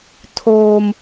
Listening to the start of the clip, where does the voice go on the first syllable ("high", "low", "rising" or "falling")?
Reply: low